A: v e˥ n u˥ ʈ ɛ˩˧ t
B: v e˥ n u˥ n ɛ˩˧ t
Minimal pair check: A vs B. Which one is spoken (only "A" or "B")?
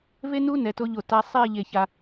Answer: B